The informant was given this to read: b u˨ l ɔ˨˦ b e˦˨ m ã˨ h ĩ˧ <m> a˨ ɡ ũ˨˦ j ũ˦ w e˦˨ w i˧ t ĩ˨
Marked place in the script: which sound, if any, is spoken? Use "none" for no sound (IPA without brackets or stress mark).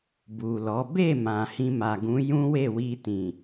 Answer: m